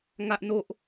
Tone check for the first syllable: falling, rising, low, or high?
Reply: high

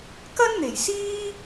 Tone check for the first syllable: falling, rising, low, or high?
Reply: high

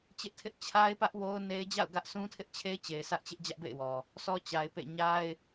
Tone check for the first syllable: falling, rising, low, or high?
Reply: high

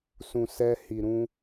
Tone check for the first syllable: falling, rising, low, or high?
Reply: low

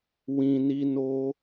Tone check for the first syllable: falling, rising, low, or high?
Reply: low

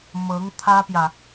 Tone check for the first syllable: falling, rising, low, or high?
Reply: rising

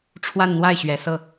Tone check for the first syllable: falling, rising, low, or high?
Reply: falling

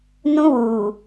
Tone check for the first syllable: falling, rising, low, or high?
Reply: high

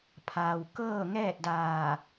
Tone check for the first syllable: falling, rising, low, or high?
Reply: low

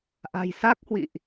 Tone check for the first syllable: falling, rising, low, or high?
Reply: low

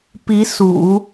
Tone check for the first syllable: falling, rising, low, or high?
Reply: rising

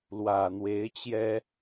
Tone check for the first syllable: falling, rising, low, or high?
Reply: low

